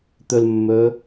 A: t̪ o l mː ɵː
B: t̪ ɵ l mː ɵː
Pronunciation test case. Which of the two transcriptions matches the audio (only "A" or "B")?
B